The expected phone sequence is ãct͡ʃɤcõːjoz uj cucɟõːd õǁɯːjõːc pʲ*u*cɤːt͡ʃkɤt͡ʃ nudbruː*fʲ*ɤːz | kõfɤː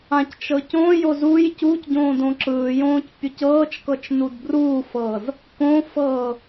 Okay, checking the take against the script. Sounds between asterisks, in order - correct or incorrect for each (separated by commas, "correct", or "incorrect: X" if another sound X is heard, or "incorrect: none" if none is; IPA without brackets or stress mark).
correct, incorrect: f